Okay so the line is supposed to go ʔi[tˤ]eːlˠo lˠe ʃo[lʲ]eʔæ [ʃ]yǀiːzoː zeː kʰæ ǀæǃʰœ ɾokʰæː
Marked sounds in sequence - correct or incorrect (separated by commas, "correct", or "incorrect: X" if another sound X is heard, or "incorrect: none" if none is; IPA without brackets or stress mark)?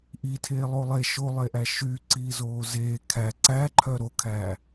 incorrect: tʰ, incorrect: lˠ, correct